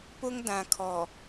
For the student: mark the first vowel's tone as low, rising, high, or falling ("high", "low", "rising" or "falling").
high